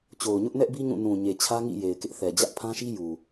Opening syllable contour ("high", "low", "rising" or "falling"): low